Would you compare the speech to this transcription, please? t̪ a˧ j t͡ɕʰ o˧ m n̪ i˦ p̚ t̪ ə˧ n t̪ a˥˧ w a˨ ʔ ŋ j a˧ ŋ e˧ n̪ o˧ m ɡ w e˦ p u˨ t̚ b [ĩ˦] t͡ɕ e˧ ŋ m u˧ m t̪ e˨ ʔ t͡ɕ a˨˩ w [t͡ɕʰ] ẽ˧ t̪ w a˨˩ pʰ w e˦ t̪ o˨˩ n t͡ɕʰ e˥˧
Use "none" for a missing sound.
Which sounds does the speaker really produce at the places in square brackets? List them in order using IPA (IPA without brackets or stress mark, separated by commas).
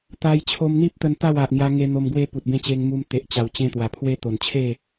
ẽ˦, t͡ɕ